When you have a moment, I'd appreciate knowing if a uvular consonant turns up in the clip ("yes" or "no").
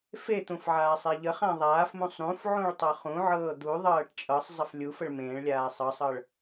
yes